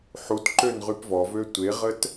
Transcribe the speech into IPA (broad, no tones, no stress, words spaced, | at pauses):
ħutǃøn ʁypvɔvø tʷeʁət